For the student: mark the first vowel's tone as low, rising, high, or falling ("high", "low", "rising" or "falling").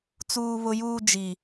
high